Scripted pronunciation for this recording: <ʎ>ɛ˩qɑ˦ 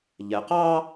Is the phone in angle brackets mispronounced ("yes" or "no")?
no